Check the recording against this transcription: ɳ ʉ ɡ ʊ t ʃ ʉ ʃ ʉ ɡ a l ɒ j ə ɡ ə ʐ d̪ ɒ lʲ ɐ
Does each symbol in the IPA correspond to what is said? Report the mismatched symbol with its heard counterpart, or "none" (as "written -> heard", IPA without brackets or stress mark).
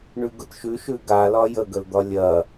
ʐ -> l